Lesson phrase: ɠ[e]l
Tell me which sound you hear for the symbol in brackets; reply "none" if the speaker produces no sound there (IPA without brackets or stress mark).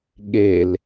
e